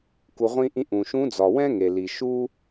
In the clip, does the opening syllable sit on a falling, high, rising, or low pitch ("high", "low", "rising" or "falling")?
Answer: low